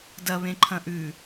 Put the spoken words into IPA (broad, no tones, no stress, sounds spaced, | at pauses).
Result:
d ɐ β ẽ ǃʰ ɐ̃ ʔ ʉ